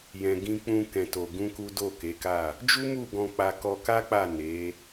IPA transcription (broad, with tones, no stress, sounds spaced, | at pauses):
j ɛ̃˨ ɡ ĩ˧ k͡p ũ˧ k ɛ̃˧ t o˧ ɡ ũ˦ k u˦ d o˦˨ k e˨˦ k a˦˨ | d͡ʒ u˦ m u˦˨ ɡ ɔ̃˧ k͡p a˧ k ɔ˧ k a˦ k͡p a˦˨ n e˨˦